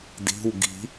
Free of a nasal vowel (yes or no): yes